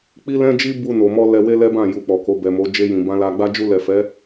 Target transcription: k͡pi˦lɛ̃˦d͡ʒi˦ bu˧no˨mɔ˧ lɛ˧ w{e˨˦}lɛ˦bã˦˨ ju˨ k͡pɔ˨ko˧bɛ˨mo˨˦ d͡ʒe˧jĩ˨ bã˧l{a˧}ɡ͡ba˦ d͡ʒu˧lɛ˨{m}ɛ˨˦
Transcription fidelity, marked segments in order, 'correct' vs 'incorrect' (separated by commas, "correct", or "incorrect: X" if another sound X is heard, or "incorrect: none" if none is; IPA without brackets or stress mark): incorrect: e˦, correct, incorrect: f